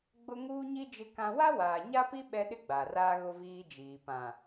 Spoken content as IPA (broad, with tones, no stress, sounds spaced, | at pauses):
ɡ͡b ʊ˦ ŋ uː˦ ɲ i˦ d͡ʒ ɪ˦ k ã˦ w a˦ w aː˨ ɲ a˦ p i˦ ɓ ɛ˦ ɗ ɪ˦ ɡ͡b a˨ r aː˦ ɣ ʊ˦ v iː˦ d͡ʒ iː˨ p ã˨